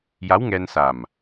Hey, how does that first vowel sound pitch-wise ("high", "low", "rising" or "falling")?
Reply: rising